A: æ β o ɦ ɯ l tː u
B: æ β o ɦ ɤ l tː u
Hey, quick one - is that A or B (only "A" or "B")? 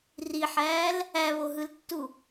A